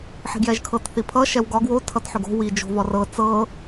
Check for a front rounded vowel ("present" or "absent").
present